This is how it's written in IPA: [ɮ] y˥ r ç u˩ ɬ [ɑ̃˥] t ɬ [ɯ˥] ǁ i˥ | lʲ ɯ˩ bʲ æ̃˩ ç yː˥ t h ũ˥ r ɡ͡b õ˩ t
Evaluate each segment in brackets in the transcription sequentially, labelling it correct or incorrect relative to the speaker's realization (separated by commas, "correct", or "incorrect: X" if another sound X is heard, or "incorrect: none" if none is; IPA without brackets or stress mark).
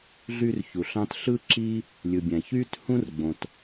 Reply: correct, correct, correct